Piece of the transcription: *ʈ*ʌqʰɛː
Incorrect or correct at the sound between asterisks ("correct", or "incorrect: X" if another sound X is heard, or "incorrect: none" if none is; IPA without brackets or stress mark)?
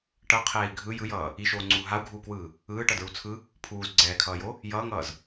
correct